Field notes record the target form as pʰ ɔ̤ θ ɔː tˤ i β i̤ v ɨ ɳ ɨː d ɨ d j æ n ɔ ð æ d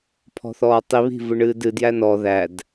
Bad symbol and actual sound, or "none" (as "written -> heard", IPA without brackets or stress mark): none